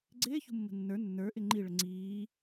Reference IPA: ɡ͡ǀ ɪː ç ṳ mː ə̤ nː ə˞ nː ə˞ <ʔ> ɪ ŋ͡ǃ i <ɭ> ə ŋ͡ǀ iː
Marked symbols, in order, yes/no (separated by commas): yes, yes